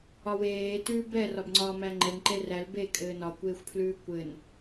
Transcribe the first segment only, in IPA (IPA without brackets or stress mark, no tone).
ɒ